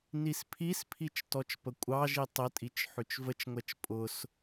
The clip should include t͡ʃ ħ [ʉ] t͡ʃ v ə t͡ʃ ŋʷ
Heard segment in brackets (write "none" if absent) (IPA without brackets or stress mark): ʉ